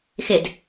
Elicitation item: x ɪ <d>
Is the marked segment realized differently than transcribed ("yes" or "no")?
no